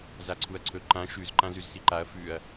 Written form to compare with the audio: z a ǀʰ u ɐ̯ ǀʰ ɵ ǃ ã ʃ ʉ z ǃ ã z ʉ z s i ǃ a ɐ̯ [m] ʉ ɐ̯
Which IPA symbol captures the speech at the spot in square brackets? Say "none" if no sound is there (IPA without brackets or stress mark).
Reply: f